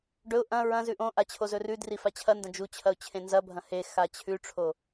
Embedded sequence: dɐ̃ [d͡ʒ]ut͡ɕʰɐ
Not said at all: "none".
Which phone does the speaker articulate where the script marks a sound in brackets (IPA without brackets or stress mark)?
d͡ʒ